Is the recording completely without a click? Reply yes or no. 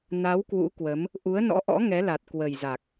yes